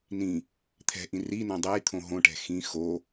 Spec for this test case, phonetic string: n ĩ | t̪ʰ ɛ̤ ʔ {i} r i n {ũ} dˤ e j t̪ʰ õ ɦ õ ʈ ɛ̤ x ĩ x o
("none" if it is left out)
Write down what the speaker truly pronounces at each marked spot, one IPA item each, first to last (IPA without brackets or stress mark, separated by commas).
ĩ, õ